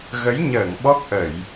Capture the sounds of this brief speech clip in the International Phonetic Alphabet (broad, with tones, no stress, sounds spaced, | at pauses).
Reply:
ɣ ə˨˦ j ɲ əː˧˩ ŋ ɓ ɔ˦˥ k̚ ʔ ə˧˩˨ j